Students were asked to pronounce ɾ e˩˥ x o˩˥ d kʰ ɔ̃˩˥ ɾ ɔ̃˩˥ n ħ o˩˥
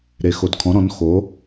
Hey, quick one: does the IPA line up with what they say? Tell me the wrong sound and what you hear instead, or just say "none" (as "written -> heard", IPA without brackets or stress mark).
ħ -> x